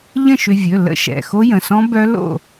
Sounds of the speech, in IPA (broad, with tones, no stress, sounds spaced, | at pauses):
ʎ ə̃˥˨ ʃ ʏ˧ vʲ ɵ˩˧˩ l ə̰˦˥ ʃ ɛ̰˩˧˩ x o˦˥ j ə̃˩˧˩ s ɔ̃˦˥ b œ˦˥ l o̰˥˨